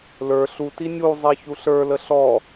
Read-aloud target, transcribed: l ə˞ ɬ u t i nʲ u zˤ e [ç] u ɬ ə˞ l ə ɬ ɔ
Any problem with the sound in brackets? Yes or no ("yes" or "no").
no